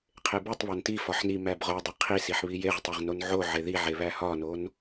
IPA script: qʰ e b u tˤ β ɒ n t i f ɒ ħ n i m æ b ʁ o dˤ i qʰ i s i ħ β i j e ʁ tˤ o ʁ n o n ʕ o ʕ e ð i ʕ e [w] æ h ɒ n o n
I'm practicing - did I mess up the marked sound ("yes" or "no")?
yes